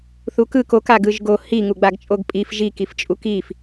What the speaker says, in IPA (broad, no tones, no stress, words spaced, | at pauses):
θukɯk ok aɡɯʒɡo hi ŋuɡ͡baɡt͡ʃʼoɡpʼif ʒi kift͡ʃʼukif